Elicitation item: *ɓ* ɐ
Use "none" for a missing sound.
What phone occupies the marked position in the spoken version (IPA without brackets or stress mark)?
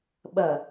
ɓ